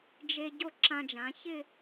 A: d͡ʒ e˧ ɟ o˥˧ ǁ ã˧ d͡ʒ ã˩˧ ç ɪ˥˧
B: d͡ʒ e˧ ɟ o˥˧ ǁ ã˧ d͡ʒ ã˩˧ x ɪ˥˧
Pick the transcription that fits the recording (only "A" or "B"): A